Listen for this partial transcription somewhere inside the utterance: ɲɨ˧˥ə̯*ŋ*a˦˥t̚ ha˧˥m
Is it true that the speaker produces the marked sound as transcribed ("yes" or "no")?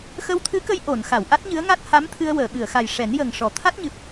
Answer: yes